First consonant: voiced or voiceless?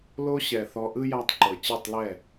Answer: voiced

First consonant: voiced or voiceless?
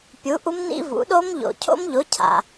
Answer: voiceless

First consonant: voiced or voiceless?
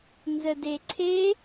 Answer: voiced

